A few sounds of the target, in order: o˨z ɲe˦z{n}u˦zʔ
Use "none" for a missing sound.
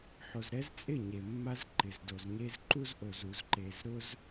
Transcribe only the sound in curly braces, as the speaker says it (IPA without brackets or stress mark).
ǃ